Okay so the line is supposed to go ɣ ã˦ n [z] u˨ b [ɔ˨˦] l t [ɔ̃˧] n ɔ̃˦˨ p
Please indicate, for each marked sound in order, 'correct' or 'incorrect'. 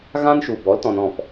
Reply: incorrect, correct, incorrect

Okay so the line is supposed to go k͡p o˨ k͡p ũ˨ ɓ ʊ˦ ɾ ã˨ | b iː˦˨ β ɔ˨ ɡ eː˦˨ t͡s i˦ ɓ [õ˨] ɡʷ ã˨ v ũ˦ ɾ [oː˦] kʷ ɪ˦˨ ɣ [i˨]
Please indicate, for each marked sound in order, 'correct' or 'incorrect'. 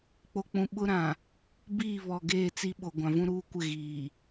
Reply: incorrect, incorrect, incorrect

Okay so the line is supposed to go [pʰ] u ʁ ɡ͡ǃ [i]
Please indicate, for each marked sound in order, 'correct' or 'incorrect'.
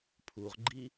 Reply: correct, correct

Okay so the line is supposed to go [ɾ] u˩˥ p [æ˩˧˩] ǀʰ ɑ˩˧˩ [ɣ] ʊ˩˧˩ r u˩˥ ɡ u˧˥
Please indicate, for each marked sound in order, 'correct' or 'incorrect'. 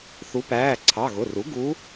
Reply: incorrect, incorrect, correct

